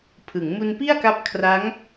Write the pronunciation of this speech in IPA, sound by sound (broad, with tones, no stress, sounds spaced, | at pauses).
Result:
pʰ ɯ˩˦ ŋ m u˧ n p i˥˩ a̯ k a˦˥ p̚ kʰ r a˦˥ ŋ